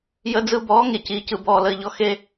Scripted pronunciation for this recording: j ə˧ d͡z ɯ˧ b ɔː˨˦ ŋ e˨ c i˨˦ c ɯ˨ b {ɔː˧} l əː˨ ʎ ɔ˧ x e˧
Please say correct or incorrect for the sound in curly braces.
incorrect